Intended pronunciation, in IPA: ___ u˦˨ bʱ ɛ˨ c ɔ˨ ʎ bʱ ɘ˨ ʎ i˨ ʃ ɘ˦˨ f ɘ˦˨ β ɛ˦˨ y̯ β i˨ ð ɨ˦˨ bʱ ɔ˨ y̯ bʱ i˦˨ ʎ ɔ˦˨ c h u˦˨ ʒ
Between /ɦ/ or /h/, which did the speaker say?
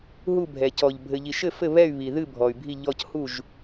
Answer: ɦ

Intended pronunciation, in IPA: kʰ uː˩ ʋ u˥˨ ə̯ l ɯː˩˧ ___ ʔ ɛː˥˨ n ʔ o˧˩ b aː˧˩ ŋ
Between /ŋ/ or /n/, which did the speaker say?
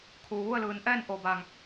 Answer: n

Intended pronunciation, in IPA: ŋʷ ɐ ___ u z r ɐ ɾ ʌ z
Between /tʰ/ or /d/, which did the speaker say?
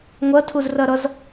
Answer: tʰ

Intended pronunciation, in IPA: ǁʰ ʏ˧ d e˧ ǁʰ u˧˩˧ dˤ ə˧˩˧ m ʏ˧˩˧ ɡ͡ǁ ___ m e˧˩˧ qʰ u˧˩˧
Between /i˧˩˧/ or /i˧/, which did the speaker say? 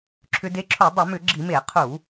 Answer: i˧˩˧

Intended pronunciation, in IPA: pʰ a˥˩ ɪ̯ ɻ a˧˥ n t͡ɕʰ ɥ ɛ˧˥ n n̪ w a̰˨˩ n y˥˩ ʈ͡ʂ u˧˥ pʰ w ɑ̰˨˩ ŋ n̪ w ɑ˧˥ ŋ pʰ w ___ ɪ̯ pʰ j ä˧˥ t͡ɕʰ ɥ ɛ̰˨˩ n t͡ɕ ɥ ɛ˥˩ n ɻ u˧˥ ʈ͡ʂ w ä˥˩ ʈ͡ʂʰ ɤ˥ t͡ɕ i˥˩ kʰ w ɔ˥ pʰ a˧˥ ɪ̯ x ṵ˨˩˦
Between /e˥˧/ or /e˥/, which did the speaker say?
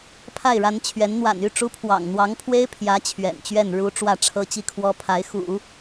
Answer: e˥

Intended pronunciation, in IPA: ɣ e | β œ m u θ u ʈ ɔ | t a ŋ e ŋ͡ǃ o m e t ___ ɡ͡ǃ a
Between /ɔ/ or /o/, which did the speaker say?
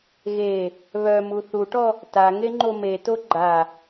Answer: o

